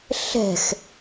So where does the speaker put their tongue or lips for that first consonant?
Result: tongue tip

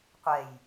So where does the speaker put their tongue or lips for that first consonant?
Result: uvula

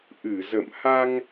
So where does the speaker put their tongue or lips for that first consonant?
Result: throat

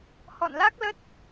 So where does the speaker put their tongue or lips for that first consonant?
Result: throat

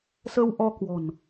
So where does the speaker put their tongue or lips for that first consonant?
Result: tongue tip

